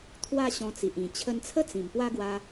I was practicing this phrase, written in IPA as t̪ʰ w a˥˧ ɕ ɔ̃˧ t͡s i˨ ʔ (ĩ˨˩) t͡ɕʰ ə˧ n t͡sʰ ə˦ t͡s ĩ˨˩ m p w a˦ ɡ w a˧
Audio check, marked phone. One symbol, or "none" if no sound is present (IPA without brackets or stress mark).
ĩ˨˩